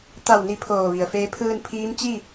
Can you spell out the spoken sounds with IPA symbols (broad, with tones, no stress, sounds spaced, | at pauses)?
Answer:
t̪ a˧˩ w n i˧˩ pʰ oː˧˩ ʋ i˩ ə̯ f eː˧˥ pʰ ɯː˧ n pʰ iː˧˥ m t͡ɕ i˥˨